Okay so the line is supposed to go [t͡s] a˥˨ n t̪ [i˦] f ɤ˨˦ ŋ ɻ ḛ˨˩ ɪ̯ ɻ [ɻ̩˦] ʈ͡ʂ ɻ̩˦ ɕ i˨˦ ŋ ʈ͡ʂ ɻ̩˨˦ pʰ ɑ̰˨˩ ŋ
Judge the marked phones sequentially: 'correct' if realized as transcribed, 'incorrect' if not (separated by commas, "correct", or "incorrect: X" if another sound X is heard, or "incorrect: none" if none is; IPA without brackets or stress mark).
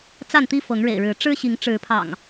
correct, correct, incorrect: ɻ̩˨˦